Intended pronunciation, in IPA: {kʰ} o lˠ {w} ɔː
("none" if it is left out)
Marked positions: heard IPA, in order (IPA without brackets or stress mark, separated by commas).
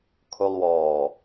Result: kʰ, w